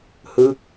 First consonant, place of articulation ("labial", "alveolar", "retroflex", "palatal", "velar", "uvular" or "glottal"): glottal